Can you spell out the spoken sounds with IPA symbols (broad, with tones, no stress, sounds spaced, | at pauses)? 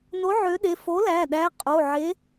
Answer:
n o˨˥ ʕ ø˨˥ ɗ e˩˧˩ f o˨˥ l æ˩˧˩ ɗ æ˨˥ qʼ o˩˧˩ ʕ e˨˥